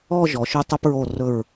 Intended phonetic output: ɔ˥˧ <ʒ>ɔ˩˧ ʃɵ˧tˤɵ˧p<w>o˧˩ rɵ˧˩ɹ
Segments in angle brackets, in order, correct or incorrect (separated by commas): correct, incorrect